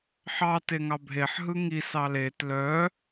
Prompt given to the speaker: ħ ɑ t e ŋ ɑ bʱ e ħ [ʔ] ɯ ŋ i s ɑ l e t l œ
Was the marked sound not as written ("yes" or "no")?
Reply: yes